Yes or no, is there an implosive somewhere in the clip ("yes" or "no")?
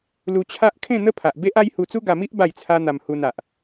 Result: no